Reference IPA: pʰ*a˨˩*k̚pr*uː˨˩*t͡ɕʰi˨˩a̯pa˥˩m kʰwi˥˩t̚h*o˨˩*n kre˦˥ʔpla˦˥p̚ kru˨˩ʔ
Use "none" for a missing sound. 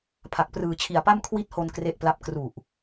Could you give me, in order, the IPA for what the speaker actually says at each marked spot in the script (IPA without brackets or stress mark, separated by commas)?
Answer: a˨˩, ɯː˨˩, o˧